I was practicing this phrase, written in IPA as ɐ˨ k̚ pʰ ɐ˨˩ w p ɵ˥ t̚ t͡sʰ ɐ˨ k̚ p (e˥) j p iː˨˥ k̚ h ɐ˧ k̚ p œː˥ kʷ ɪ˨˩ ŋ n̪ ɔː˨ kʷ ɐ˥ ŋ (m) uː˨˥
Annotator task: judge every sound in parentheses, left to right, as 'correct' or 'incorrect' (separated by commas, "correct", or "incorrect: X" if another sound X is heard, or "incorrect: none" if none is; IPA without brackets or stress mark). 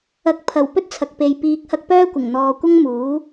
incorrect: e˨, correct